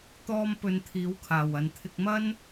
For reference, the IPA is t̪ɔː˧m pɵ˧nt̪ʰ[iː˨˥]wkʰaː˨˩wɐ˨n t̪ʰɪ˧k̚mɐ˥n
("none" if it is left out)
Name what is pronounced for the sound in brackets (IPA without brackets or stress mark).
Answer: iː˨˥